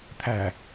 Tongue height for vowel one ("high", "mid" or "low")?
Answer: low